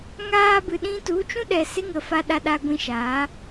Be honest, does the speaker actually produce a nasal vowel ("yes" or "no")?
yes